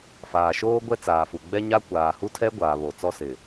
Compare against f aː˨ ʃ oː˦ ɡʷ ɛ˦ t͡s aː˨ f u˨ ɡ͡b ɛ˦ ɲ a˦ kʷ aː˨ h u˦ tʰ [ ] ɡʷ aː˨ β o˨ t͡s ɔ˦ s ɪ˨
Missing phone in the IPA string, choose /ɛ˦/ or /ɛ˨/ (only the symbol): ɛ˦